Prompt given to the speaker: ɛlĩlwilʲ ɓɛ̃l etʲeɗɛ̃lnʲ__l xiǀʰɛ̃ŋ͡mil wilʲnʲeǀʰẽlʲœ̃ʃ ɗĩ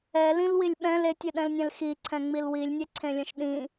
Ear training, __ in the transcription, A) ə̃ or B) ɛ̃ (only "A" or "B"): B